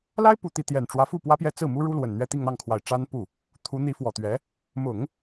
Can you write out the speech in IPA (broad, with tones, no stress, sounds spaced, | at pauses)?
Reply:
l a˥ ɪ̯ p u˨˩ t̪ i˥˩ t̪ j ɛ˨˩ n ʈ͡ʂ w ä˧˥ f u˥˩ p w ä˥ p j ɛ˥˧ t͡s ɹ̩˥˩ m u˥ ɻ u˥ l w ə˨˩ n n̪ ɥ ɛ˥˧ t̪ i˥˧ ŋ n̪ ɑ˥˩ ŋ kʰ w a˨˩ ɪ̯ ʈ͡ʂ a˥ n p u˥˩ | t̪ʰ u˧˥ n̪ i˧˥ f w ɔ˨˩ t̪ ɥ ɛ˧˥ | m ʊ˨˩˦ ŋ